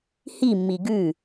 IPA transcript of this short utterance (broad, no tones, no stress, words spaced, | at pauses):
himːi ɡʉ